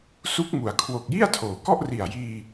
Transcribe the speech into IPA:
s u˦˥ k̚ m u˩˦ a̯ kʰ w o˨˩ k̚ j i˥˩ a̯ tʰ oː˩˦ k ɔ˥˩ ʔ r i˨˩ a̯ j iː˧

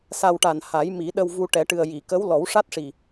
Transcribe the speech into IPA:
s a˧ w ʈ a˨˩ n h a˨˩˦ j m i˨˩˦ ɗ ə˧ w v u˧ ʈ ɛ˨˩˦ ʈ ɨ˨˩ ə̯ j i˨˩˨ k ə˧˥ w l ɔ˨˩˦ w ʂ a˦˥ t̚ ʂ i˨˩

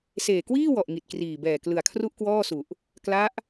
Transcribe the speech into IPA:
s eː˨˩ k w iː˥˩ w ɔ˨˩ ʔ ŋ i˨˩ t̚ k r iː˨˩ b ɛː˨˩ k l ɯ˨˩ a̯ kʰ r u˥˩ ʔ k w ɔː˥˩ s u˨˩ ʔ | k l a˦˥ ʔ

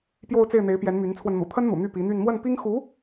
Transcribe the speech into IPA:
p j o˥˧ ʊ̯ t͡s e˥˩ ɪ̯ n̪ e˧˥ ɪ̯ p j ɛ˧˥ n m y˧˥ n t͡sʰ w ə˧ n n̪ ṵ˨˩ t̪ʰ ə˥ n n̪ ṵ˨˩ n̪ y˥˩ p i˧˥ n̪ y˥˧ n m w ə˥˩ n p i˥ ŋ x u˧˥

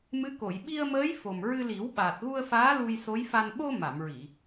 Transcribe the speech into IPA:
m ɨ˧˥ k o˨˩˨ j ɓ i˧ ə̯ m əː˧˥ j f o˨˩ m ɹ ɨ˧ l i˨˩˦ w ɓ aː˨˩ t̚ ɣ u˧ ə̯ f aː˧˥ l u˧ j s o˧˥ j f a˧ n ɓ o˧ m a˨˩˨ m ɹ i˨˩˨

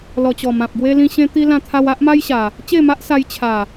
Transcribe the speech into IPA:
l ɔ˨˩ t͡ɕ ɔ˨˩ m ã˨ p̚ ɡ w e˧ l ĩ˧ ɕ ẽ˧ t̪ i˧ l ã˦ t̪ʰ a˦ w a˦ ʔ m a˦ j ɕ a˨˩ | t͡ɕ e˥˧ m a˦ ʔ s a˧ j t͡ɕʰ a˨˩

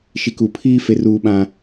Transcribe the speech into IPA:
ʃ i˨ k u˨ pʰ iː˦ f e˦ r uː˦ ɓ ã˦

